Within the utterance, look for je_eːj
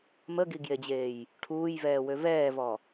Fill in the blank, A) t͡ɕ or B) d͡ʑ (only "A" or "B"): B